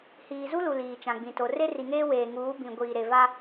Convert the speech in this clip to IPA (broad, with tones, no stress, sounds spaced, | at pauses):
h iː˨ z u˦ l u˨ l iː˨ t͡ʃ ã˨ ɡ͡b ĩ˨ t o˨ r e˦ r i˨ ŋ eː˦ w eː˨ ŋ uː˨˦ b ĩ˨ ɡʷ iː˨ ɾ e˨ v a˦